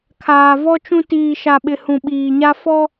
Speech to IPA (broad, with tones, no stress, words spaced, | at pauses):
kʰaː˨vɔ˦t͡ʃũ˦ tiː˨ʃa˨ɓɪ˨ hũ˨ɓiː˨ɲa˦ fɔ˦